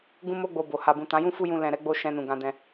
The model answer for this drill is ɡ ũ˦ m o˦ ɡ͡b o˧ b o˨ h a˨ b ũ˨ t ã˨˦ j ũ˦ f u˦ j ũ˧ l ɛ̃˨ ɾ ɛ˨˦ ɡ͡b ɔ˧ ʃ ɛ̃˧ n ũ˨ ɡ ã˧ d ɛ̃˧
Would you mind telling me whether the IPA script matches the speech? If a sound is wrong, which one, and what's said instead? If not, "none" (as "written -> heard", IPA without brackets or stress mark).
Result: ɔ˧ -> o˧